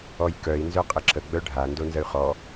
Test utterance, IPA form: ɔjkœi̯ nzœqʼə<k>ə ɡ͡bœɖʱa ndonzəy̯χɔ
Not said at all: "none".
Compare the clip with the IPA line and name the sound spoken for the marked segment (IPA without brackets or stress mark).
ǁ